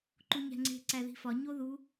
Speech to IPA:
ǃ u ɲ æ̤ ŋ͡ǀ e̤ ǀ æ ð i̤ f ɒ ɲ o ð u

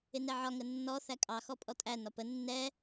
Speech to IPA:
ɪ n ɛ ʕ ɒ ŋ ə nː ɔ θ æ kʼ ɑ x ɔ pʼ ɔ tʼ æ n ɒ p ə nː ɛ

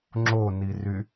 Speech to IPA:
ŋ͡ǁ o n i r y

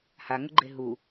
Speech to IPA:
h a ŋ ʊ ɡ͡ǃ e ɦ u

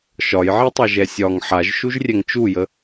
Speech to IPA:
ʃ ɒ j ʕ i tˤ a ʒ ɛ sʲ ɒ ŋ ħ a ʒ ʃ u ʒ rʲ ɛ ŋ t͡ʃ u j ə

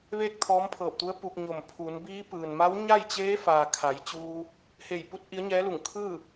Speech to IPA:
ʋ eː˥˨ k̚ t̪ʰ ɔː˧˥ m pʰ ɤː˧˩ p̚ t̪ u˧˥ ə̯ p u˧ k̚ ɲ o˧˩ m pʰ u˩˧ n b iː˧˥ p ɯː˩ n m a˧˥ w ɲ a˥˨ j t͡ɕ eː˧˥ f aː˩ kʰ a˩˧ j t͡ɕ uː˧ | h e˧˩ j p u˧˥ t̚ ʔ i˧˥ ə̯ ɲ ɛː˧˥ l u˧˩ ŋ kʰ ɯː˥˨

